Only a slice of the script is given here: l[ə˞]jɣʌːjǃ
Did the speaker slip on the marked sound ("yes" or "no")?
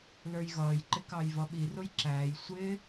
no